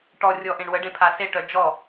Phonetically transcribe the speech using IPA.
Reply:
ʈɔ rʲɔʔẽɳwəɖẽ pʰaseʈœ d͡ʒɔ

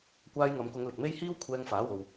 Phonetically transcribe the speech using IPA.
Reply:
kʷaː˧jŋɐ˨˧mkʊ˨˧ŋ lɪ˨k̚me˥j hiː˥wkʷʰɛː˧ŋfaː˨˥ wo˧w

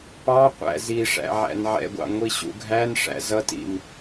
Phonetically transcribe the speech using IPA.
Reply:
pɑqʷæ̰ ziʂæ̰ ʕæ̰nʕɛ̰ɡʷɑ̰ ŋʷiɕṵɡʱænʂæ̰ zʌtḭm

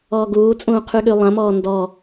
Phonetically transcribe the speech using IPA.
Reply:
ɔːɡuːt͡sʼũː qʰyɠylˠãmɔː ndɔ

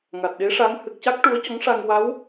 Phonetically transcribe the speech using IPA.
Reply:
ŋa˨˩t̚ɗe˧˥ʂa˧˥ŋ hɨ˨˩k̚ca˦˥k̚ ʈu˧˥ə̯cɔ˧˥ŋʂa˧ŋ wa˧˥w

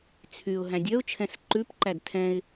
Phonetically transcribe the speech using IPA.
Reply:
t͡sʰyʊ̯ ɦæ̃dʲœʊ̯t͡ʃʰɛ̃s ǃʉpǃæd tʰɛ̃ɪ̯

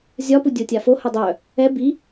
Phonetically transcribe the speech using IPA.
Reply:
zʲɒpu dʲotʲafo hœdˤœ | ɛ bi

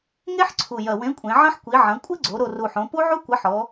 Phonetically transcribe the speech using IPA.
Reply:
ŋe˦˥ħǀʰu˨˩ jɐ˨˩wẽ˨˥kʷʼẽ˩˧ʕɐ̃˦˥ħ kʷi˩˧ʕɐ̃˩˧ kʷʼɘ˦˥ɡ͡ǀo˩˧ ɾo˨˩ru˨˩ħõ˩˧ pu˦˥ʕu˦˥ kʷɐ˨˥ħɔ˩˧

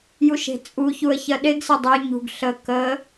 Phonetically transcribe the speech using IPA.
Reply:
juʃe̤t͡sʼuçuə̯ çɜɗeɡsə˞ dˤə˞ɲṳɡ ɬə kə

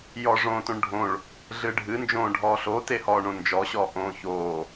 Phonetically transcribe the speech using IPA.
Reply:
jɔʐõːtõɳɖʱõɭ | ɮɨɖʱɨ nd͡ʒõːɖʱɔːɬo tehɔːɳõnd͡ʒɔ ɕɔːʔõːçoː

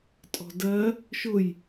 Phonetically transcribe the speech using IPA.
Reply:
tʼɔ̤dɜ | ʃʊj

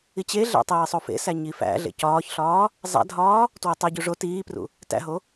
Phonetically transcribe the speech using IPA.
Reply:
it͡ɕeɮæ̰ tˤiːsˤofḛsæ ɲifæ̰ɮḛ cɒːçɬɒː | zˤæ̰dʱɒː | twetˤeɟu ʐo tiːprṵ | tæ̰ɦo

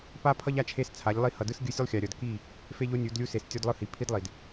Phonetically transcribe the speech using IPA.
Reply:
pa˦pʰʌ˦ʎ a˦t͡ʃʰe˦st͡sʰa˨˦ʎlˠi˦ hʌ˨dɯ˦s ɡʲɯ˦sʲu˦lˠxʲa˨ ɾʲʌ˨dki˦˨ | fe˦ʎo˦ nʲu˨˦dlʲu˦ se˨s tʲo˦dlˠɯ˦hi˨ pʰi˦dlˠi˨d

